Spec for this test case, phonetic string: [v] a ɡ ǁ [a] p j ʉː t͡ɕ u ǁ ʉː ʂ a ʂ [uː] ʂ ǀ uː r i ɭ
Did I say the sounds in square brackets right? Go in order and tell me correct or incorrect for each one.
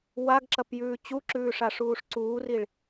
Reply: incorrect, incorrect, correct

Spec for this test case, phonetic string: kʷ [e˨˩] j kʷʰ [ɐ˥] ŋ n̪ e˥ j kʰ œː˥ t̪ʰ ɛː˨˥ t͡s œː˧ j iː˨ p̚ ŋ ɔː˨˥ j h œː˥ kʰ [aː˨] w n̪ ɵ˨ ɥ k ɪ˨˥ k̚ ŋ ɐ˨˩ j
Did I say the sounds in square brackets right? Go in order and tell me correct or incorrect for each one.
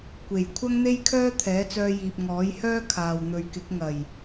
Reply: correct, correct, correct

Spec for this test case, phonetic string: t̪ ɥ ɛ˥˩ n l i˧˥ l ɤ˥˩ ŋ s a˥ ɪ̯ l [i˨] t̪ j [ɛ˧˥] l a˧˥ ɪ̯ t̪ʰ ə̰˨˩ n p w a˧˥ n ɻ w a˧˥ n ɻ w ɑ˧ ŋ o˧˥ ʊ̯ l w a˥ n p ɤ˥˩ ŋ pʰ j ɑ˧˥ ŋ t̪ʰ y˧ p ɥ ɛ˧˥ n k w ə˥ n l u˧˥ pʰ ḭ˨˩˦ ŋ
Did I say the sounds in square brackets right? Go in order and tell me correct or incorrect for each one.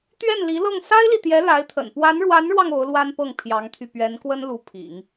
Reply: correct, correct

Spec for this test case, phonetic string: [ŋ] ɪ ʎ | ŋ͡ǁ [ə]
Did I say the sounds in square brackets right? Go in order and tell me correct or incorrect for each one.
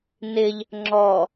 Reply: incorrect, incorrect

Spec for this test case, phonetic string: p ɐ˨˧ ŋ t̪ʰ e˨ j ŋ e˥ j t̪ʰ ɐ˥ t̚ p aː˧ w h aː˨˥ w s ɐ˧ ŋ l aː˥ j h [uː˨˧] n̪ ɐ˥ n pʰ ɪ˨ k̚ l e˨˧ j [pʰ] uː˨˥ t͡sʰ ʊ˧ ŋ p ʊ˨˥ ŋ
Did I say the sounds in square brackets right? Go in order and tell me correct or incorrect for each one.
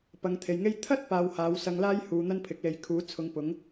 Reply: correct, incorrect

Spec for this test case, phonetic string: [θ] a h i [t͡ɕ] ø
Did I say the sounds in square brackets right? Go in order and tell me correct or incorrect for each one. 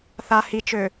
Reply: correct, incorrect

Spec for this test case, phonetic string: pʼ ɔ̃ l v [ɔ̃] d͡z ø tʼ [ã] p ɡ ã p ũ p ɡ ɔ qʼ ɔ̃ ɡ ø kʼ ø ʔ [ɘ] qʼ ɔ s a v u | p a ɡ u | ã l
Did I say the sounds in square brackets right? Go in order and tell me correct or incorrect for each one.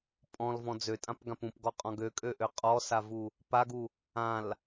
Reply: correct, correct, incorrect

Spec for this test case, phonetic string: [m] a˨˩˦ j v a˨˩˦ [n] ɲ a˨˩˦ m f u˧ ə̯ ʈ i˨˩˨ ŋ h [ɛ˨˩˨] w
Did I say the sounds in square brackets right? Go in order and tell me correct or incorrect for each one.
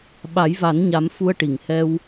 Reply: incorrect, correct, incorrect

